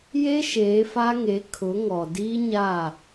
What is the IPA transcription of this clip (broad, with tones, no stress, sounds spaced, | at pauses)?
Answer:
j e˦ ʃ eː˨˦ f a˦ ŋ e˨˦ kʰ ʊ˨˦ ŋ ɔ˨ d iː˦ ɲ a˦˨